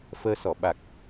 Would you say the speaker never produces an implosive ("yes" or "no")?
no